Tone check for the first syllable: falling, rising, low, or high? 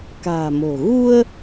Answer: low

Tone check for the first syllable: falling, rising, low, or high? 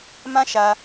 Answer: high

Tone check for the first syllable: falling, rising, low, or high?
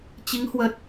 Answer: rising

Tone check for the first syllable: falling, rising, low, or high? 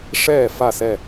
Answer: falling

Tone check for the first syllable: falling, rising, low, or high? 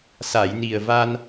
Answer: low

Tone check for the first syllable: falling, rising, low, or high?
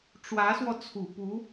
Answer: rising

